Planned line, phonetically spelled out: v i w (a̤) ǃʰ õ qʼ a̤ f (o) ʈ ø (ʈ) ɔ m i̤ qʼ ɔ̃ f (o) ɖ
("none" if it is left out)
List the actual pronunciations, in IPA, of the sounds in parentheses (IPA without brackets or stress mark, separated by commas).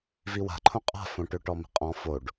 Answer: a̤, õ, ʈ, o